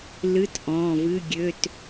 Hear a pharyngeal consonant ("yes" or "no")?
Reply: no